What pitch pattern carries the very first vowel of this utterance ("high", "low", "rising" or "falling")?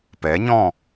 rising